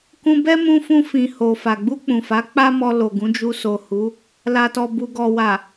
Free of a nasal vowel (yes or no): no